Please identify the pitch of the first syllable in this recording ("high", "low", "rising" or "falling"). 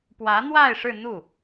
rising